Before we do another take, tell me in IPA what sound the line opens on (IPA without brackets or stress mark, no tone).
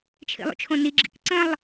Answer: t͡ʃʰ